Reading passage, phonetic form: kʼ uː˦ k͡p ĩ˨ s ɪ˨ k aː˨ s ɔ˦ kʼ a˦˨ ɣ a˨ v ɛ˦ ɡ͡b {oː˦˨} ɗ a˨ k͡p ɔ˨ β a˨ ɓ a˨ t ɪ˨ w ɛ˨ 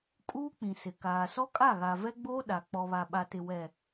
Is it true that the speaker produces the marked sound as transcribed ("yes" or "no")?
no